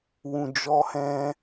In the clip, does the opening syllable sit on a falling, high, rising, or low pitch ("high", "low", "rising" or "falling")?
low